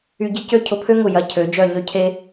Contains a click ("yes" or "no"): no